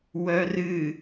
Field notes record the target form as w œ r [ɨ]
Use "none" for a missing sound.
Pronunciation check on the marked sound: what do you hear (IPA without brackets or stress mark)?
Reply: ɨ